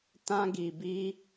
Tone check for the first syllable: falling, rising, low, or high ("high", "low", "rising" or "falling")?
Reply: high